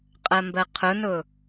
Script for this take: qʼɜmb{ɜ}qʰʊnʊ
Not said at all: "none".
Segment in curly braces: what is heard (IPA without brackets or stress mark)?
ɜ